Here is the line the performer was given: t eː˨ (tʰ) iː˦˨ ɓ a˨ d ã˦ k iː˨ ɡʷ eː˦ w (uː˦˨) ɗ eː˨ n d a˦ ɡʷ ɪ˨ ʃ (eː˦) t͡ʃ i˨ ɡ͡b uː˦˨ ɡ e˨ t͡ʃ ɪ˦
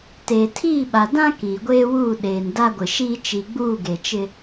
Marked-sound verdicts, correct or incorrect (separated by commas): correct, correct, incorrect